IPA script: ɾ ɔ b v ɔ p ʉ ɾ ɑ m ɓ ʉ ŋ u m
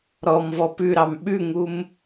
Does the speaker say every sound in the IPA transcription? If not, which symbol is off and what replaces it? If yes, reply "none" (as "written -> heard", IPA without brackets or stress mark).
b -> m